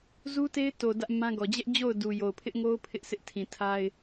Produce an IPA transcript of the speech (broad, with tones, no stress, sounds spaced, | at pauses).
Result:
z u˦ t e˦ ɪ̯ t o˨ d ä˦ ʔ m ã˦ ɡ ɔ˨ d͡ʑ ɛ˦ ʔ d͡ʑ o˦˨ ʊ̯ d u˨ j o˨ ʊ̯ pʰ ɪ˦ ʔ ŋ o˦ ʊ̯ pʰ ɪ˦ ʔ sʰ ɪ˦ ʔ tʰ ĩ˨ tʰ a˦ ɪ̯